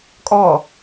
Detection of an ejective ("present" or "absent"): present